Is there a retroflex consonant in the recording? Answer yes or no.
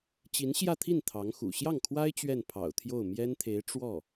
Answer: yes